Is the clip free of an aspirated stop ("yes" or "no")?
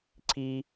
no